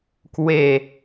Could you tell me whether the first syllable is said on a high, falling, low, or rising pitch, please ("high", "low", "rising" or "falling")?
falling